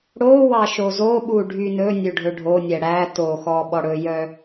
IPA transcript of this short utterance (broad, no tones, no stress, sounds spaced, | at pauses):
ɽ o w ɑ ʃ o z o ɓ u ɖʱ y n ɵ nʲ ø ɖʱ ɵ ɖʱ o nʲ ɛ ɽ æ t o x ɔ ɓ ɔ ɽ ɵ j œ